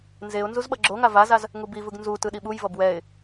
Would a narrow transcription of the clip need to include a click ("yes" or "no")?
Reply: yes